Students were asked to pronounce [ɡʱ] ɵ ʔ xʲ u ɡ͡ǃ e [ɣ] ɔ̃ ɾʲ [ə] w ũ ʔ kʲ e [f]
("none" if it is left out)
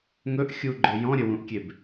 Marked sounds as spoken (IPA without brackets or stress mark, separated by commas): ŋ, j, ə, b